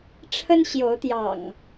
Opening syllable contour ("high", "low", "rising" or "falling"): high